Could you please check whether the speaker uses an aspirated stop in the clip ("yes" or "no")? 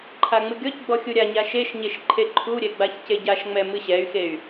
yes